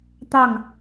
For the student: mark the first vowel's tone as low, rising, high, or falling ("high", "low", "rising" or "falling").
falling